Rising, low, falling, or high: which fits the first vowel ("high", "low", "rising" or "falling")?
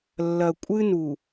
low